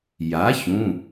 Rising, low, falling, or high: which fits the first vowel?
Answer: rising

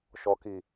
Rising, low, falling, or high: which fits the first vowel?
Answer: low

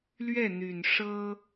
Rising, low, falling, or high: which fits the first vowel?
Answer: falling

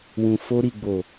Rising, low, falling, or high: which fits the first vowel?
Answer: low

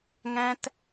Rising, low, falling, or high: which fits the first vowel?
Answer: high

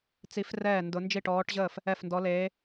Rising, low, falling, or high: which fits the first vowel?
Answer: rising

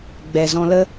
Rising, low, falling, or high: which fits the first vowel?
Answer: low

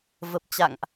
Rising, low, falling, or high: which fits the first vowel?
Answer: low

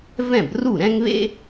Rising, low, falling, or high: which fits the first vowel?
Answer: falling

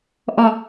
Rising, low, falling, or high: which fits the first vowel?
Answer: falling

